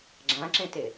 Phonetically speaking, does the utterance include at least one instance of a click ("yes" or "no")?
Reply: yes